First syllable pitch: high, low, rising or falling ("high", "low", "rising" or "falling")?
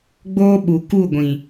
high